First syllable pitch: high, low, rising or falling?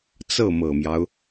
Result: falling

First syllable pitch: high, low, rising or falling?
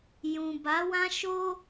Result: low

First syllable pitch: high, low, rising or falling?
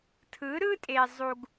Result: rising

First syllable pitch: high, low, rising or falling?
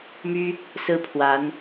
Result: high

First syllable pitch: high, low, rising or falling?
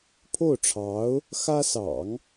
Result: falling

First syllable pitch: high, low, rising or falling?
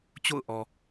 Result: falling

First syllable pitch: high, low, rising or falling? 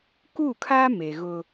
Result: falling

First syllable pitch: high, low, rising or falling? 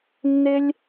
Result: high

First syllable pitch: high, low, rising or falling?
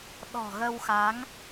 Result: low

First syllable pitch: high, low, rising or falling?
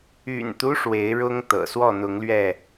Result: low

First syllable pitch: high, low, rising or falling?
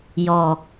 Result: low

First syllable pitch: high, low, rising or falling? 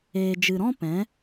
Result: low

